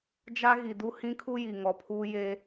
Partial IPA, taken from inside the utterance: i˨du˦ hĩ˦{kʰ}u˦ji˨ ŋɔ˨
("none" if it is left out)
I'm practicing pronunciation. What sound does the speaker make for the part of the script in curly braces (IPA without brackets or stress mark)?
kʰ